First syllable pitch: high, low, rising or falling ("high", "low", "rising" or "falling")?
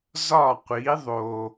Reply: falling